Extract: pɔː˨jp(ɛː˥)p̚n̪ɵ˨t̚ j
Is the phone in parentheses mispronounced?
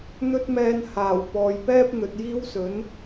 no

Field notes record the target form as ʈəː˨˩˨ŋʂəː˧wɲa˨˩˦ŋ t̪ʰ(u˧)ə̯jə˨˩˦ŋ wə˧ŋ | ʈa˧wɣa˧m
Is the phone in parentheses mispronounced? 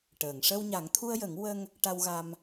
no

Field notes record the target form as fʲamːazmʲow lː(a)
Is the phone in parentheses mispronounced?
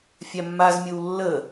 yes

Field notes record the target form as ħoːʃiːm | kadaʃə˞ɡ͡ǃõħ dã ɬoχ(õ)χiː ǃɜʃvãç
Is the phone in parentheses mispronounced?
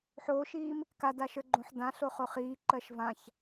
yes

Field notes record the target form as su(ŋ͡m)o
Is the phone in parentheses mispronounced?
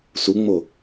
no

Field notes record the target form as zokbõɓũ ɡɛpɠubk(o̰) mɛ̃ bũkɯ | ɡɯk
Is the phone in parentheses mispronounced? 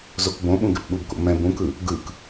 no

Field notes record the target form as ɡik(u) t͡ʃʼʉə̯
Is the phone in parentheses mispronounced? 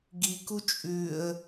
no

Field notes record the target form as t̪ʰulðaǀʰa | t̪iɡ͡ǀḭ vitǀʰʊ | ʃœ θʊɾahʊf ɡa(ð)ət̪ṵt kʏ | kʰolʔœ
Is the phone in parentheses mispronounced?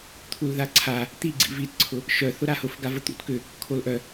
yes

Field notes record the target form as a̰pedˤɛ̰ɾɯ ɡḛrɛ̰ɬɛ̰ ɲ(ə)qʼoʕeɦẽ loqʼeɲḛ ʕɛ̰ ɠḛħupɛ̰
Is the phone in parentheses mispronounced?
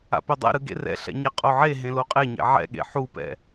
yes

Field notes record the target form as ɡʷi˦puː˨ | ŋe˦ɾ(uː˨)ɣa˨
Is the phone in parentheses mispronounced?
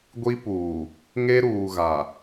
no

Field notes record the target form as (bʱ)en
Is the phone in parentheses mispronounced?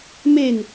yes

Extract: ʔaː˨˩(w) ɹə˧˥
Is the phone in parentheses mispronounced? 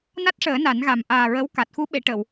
yes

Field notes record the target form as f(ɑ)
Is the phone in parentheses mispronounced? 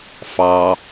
no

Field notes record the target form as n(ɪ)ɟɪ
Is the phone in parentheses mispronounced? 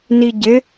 yes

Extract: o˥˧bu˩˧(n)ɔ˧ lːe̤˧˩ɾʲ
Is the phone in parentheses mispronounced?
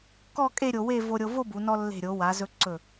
no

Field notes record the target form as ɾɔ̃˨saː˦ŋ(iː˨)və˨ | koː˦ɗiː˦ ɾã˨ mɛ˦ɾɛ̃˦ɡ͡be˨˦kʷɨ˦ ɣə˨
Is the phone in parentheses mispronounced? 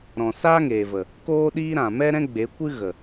yes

